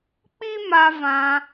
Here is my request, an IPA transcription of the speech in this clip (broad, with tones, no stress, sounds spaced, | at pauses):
k͡p i˦ m a˧ v ã˧